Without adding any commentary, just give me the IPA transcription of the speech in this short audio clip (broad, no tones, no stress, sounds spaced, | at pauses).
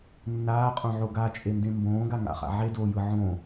nː aː qʼ õ ʕ o ɡ a t͡ʃʼ e n d ẽ m b õː ɡ a ŋ a̰ χ a̰ ʕ e d oː j ɯ ʕ õː